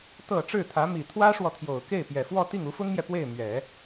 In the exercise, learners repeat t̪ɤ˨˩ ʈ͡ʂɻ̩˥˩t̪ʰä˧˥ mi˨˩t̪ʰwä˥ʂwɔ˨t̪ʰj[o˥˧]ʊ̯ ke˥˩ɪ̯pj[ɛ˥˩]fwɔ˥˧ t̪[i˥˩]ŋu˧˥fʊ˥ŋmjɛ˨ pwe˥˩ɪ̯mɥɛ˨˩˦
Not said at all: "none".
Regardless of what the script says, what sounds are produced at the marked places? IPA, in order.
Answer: o˨˩, ɛ˨˩, i˥˩

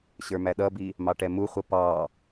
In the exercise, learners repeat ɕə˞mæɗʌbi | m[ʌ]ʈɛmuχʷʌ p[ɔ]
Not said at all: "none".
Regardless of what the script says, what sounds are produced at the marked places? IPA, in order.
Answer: ɑ, ɑ

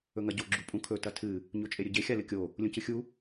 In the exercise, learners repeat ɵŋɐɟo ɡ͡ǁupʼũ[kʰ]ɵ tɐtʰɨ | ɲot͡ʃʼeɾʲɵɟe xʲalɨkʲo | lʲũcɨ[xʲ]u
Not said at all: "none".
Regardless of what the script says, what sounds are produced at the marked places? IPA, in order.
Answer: kʰ, xʲ

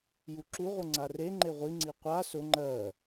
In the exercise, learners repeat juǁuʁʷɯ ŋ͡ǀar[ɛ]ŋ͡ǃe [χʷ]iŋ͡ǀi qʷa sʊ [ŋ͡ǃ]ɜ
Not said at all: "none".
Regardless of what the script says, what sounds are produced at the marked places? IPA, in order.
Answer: e, ʁʷ, ŋ͡ǃ

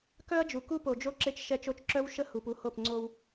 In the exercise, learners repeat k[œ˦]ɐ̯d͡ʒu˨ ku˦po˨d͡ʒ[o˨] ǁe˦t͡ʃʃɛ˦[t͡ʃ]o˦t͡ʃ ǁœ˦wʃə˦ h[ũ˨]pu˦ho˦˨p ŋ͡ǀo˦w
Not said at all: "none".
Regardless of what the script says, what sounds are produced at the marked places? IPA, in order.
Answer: œ˦, o˦, t͡ʃ, u˨

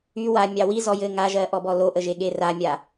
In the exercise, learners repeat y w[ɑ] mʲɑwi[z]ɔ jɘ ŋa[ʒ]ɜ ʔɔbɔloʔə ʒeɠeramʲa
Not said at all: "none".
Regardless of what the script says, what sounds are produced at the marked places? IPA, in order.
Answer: a, z, ʒ

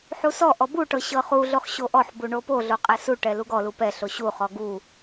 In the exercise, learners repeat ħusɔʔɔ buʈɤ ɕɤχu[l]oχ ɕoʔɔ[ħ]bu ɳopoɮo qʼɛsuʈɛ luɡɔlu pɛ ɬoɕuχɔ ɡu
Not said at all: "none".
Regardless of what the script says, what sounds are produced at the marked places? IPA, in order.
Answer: ɮ, ħ

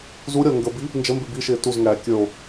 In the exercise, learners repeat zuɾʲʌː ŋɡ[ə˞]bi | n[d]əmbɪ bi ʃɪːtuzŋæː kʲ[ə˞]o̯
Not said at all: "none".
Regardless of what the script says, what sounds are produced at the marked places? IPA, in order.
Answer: ə, d͡ʒ, ə˞

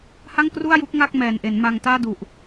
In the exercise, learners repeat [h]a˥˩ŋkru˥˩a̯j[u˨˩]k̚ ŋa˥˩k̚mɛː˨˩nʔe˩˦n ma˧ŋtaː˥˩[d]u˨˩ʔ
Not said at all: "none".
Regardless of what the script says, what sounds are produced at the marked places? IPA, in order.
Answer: h, u˦˥, d

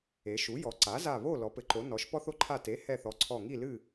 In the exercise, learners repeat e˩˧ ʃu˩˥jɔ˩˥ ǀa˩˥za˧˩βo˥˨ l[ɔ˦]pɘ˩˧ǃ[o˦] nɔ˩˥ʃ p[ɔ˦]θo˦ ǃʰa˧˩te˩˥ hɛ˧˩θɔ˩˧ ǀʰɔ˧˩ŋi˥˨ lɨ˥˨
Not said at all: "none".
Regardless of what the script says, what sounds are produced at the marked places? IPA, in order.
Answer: ɔ˩˧, o˩˧, ɔ˦

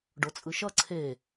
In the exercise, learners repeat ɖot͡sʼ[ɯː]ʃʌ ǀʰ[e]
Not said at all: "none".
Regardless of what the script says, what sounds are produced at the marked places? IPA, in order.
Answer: ɯ, e

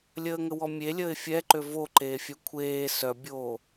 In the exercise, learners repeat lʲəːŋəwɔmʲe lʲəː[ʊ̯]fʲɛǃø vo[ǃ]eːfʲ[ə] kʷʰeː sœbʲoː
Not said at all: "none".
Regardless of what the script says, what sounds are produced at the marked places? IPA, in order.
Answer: ɪ̯, ǃ, œ

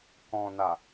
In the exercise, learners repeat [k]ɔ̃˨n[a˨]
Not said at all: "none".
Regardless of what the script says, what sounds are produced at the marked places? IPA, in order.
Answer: k, a˨

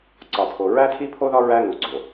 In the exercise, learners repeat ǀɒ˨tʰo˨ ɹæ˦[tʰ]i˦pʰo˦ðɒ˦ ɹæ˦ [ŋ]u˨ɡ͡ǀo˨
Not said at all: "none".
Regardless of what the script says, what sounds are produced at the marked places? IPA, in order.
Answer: tʰ, ŋ

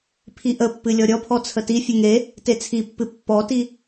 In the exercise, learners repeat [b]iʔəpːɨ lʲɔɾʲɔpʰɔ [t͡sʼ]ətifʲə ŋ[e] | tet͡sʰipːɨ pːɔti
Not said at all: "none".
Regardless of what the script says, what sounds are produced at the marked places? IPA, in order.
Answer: pʰ, t͡sʰ, e

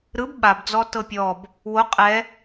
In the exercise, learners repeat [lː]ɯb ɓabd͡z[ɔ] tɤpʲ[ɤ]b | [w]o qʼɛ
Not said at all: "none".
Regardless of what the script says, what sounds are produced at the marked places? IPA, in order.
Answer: ɾ, ɔ, ɔ, w

